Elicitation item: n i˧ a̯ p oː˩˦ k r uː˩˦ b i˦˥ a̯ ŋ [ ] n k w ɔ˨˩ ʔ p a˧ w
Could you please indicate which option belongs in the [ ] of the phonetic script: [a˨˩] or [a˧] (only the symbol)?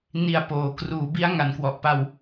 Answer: a˨˩